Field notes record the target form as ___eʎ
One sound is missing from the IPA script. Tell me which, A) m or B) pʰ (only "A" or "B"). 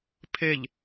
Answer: B